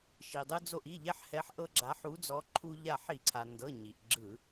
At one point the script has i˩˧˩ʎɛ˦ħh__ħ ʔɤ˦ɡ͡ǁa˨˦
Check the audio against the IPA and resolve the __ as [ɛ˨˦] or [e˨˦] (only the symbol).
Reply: ɛ˨˦